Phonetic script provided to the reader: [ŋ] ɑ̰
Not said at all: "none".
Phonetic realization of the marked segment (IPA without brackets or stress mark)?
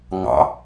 ŋ